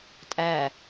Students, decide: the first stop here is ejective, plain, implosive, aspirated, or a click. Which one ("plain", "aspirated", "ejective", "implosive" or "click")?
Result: ejective